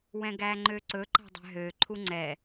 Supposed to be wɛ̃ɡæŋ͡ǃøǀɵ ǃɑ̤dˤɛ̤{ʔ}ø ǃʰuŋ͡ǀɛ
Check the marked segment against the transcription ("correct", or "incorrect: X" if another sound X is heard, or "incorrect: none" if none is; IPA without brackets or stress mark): incorrect: ɦ